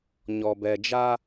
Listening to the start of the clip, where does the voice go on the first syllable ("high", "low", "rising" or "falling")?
low